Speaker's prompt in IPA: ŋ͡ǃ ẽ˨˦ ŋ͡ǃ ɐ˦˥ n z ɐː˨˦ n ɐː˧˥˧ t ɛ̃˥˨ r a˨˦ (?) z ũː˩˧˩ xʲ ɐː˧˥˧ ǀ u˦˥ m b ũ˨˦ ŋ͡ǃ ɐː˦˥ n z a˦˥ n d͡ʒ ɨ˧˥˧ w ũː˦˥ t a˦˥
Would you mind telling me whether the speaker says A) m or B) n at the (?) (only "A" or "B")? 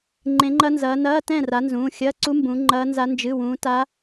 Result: B